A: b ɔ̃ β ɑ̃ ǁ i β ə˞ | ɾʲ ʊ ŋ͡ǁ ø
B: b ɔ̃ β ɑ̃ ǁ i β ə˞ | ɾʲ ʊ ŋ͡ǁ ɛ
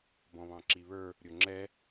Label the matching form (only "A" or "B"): B